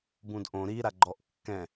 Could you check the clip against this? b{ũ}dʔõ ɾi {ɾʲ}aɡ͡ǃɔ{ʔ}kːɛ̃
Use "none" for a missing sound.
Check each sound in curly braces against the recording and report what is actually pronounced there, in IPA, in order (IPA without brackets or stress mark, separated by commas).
ũ, ɾ, ʔ